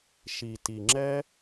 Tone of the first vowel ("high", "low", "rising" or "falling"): low